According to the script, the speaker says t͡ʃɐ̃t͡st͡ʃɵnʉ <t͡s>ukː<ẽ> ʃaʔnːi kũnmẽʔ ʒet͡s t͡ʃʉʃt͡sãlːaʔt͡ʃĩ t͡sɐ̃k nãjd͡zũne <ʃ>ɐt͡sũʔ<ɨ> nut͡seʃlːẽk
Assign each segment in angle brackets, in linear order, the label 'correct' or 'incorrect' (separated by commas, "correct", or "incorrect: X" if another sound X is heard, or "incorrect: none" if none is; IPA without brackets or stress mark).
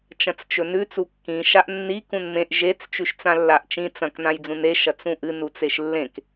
correct, incorrect: ĩ, correct, correct